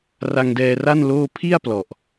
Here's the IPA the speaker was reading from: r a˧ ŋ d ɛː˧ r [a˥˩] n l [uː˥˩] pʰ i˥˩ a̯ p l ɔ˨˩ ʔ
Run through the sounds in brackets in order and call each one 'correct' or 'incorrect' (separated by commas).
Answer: correct, incorrect